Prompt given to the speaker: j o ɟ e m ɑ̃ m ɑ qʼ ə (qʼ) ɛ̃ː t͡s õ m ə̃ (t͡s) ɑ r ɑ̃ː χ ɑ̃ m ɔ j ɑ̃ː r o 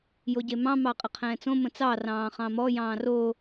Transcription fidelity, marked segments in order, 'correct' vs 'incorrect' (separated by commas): incorrect, correct